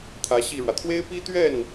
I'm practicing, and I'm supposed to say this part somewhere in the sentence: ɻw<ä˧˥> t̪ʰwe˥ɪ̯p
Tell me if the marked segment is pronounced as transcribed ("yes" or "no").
no